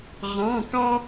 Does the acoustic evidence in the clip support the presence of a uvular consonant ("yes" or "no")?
yes